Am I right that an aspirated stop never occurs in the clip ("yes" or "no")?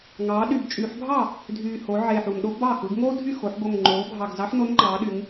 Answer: yes